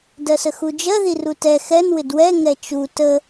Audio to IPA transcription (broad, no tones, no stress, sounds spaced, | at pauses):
d ɜ s ə x u d͡ʒ ɜ ð i r u t ɛ x ɛ n w ɪ d w ɛ ŋ ɛ t͡ʃ u t ə